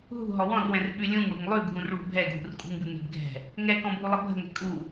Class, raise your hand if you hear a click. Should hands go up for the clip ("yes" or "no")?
no